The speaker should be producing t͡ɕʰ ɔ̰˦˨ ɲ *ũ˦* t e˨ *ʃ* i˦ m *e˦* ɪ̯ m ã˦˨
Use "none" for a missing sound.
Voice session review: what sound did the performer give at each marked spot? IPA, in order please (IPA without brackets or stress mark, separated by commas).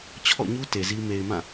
u˦, z, e˨